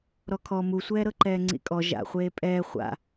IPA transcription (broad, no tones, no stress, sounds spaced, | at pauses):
ɾ ɔ kʰ ɔ m u sʷ ɛː ɾ ɤ ǃ ɛː ŋ͡ǀ ḭ kʼ ɔ ʒ a̰ χʷ eː pʼ ɛː χʷ a̰